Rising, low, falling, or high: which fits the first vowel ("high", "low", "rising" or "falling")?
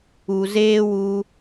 low